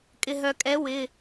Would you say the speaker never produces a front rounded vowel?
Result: no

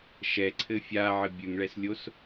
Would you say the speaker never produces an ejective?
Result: yes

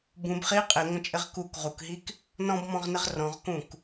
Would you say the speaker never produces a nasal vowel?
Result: no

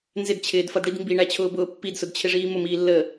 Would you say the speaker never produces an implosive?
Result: yes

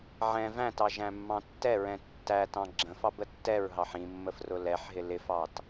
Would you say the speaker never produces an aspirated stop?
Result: yes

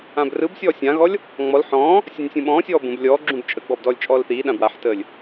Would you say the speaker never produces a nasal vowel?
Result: no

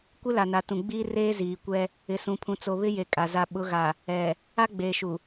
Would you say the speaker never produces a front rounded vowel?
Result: yes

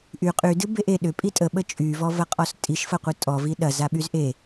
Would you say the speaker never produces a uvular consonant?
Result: no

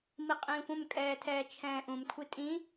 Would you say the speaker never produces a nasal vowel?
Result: no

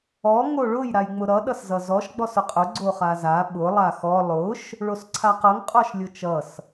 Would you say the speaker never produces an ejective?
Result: no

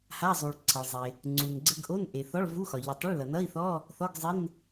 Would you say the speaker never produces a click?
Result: no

